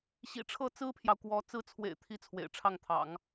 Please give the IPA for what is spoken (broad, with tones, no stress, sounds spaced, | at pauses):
ɕ ḭ˨˩ ʈ͡ʂʰ ɤ˥˩ t͡s ɹ̩˥ pʰ j ɑ˨ ʊ̯ k w ɔ˧˥ t͡s ɹ̩˧˥ t͡sʰ w ḛ˨˩ ɪ̯ t̪ʰ i˧˥ t͡sʰ w ḛ˨˩ ɪ̯ ʈ͡ʂʰ ɑ˥˩ ŋ t̪ʰ ɑ̰˨˩˦ ŋ